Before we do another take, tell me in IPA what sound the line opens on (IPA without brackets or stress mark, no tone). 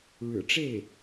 ɻ